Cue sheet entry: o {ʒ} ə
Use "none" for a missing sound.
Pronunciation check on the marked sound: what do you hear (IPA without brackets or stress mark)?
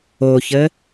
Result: ç